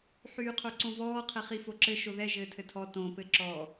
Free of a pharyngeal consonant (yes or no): no